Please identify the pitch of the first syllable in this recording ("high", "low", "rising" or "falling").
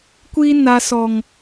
high